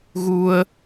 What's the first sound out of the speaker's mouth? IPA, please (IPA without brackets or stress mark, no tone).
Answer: ɣ